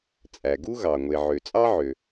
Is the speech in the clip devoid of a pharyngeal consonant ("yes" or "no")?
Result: no